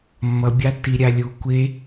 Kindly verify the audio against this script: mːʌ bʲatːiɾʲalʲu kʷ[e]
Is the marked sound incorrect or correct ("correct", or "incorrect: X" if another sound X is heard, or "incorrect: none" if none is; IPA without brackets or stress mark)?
correct